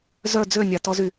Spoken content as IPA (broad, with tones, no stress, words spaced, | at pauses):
zœ˥˧d͡zø˥˧ nʲa˧tɔ˥zy˧